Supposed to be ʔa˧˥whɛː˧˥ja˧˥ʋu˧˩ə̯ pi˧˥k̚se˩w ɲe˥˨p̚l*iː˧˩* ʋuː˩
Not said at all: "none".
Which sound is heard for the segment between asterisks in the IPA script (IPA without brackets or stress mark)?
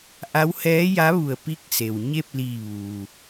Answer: iː˧˩